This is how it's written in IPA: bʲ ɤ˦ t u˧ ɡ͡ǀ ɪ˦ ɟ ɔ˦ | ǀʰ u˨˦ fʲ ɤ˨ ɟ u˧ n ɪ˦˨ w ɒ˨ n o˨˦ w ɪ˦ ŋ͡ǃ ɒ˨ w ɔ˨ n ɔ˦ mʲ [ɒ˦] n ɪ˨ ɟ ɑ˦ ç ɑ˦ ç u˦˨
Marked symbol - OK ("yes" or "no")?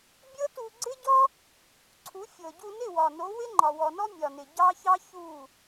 no